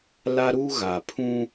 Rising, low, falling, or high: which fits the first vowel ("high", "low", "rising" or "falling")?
high